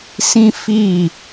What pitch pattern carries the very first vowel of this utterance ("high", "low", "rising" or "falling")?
high